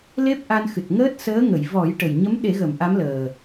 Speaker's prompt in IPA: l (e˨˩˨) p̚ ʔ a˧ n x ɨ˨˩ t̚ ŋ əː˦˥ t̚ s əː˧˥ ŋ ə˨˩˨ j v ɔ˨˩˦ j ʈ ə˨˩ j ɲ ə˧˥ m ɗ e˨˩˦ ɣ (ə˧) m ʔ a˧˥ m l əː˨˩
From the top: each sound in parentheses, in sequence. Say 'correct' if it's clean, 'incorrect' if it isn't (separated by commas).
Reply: incorrect, incorrect